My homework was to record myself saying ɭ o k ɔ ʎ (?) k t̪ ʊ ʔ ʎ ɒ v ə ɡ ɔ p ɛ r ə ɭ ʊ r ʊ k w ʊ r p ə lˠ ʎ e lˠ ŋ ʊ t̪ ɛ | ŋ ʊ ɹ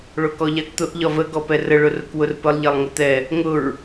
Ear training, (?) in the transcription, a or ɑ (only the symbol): a